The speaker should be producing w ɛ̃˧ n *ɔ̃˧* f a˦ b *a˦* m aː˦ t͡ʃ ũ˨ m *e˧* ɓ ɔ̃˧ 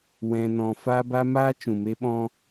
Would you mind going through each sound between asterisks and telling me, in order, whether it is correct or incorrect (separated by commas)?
correct, correct, correct